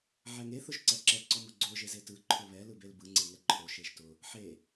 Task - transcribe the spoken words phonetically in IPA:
ʕ ɛ ŋ e θ ʊ ʒ ǀ ɛ ǁ ɛ ǀ ɔ m ʊ ɡ͡ǀ o ʒ e z e t ɯ ǃʰ o β ɛ l ɯ b e l b ɯ ŋ͡ǀ e ŋ ɛ ǃʰ o ʃ e ʒ t ʊ | ħ e

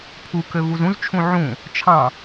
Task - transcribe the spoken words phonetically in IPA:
pʰ u k ø v u z ũ z t͡ʃʰ ũ ʕ ũ | t͡ʃʰ ɑ̃

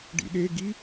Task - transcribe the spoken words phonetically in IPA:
ɖ ḭ ɗ e ɡ i

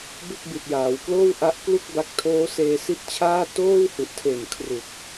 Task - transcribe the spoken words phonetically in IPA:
b ɯ˥˩ k̚ b i˨˩ t̚ j aː˩˦ w k l oː˥˩ w ʔ a˦˥ ʔ k l u˥˩ k̚ b a˦˥ k̚ tʰ oː˦˥ s eː˧ s i˦˥ t̚ t͡ɕʰ aː˥˩ t oː˥˩ w h u˨˩ ʔ tʰ e˨˩ n kʰ r u˨˩ k̚

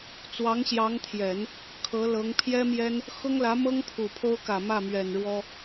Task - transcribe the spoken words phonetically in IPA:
t͡s w ɑ˧˥ ŋ ɕ j ɑ˧˥ ŋ t̪ʰ j ɛ˨˩˦ n | kʰ ɤ˧˥ l ɤ˧˥ ŋ pʰ j ɛ˥ m j ɛ˥ n | x ʊ˥ ŋ l ä˧˥ m ɤ˥ ŋ pʰ u˨˩ pʰ o˥ ʊ̯ k ä˨˩ m ä˥˩ m ɥ ɛ˨˩ n ɻ w ɔ˥

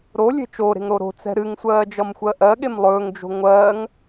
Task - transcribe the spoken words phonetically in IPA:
ɾ o lʲ e̤ t͡ʃ o ɾ e̤ ŋ ɾ o ɾ o̤ t͡s ɛ̤ ɾ ɨ ŋ sʷ ɜː d͡ʒ ʌ m xʷ ɜ ʔ ɜ ɠ e m lˠ ɵː ŋ d͡ʒ o̤ ŋʷ ɜː ŋ

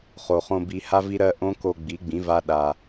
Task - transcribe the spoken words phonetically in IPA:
χ o˨ χ õ˧ b i˧ h a˦ v i˦ ɾ ɜ˦ ʔ õ˦ k o˧ ɡ͡b i˨˦ ɡ͡b ĩ˨˦ v a˦ ɗ a˧

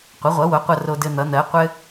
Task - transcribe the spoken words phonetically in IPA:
qʷ ʌ˩˥ ʁʷ ʌ˩˥ w o˩˥ qʷ ʌ˧ r o˧ d ɘ˧ n̪ ʌ˩˥ n̪ ɜ˩˥ qʷ ɘ˧

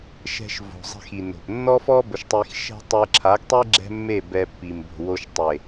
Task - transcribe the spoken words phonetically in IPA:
ʃ ɛ̤˧ ʃ v o̤˨ zˤ ɛ̤˧ x i˨ n o̤˨ p nː ɔ˦ f ɔ˦ b ʊ˧ ʃ tˤ i˧ x ʃ ɛ̤˦ tˤ e˧ ǁʰ a˨˦ ɡ tˤ e˦ ɡ͡ǁ ɛ̤˦ mː e˦˨ b ɛ˧ pː i˨ m b o̤˨ w o˧ ʃ tˤ e˨

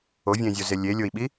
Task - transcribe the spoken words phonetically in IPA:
o vʲ ẽ zʲ o z e lʲ e lʲ o i̯ ɓ i

